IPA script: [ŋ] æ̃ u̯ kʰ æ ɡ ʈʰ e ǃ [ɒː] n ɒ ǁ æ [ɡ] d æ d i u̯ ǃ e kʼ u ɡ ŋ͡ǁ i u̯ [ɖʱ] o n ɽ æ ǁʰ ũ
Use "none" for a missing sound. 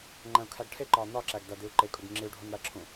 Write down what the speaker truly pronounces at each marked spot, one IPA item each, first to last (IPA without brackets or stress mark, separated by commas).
ŋ͡ǃ, ɒː, ɡ, ɖʱ